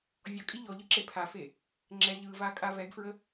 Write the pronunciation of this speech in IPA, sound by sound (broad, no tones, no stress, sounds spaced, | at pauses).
vʲ ɔ kʼ i ʎ ɔ ʎ ɯ ǁ e pʰ a f e | ŋ͡ǁ ɛ ʎ ɯ v a kʼ a v ɛ ɡ f ɹ ə